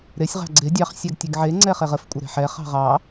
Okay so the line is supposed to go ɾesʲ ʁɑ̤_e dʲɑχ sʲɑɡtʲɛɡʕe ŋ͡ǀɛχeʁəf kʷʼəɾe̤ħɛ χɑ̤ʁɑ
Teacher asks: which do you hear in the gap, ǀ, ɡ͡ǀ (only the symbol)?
ɡ͡ǀ